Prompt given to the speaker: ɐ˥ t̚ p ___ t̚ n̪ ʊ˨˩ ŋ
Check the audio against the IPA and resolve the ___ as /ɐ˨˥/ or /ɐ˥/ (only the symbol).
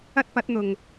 ɐ˨˥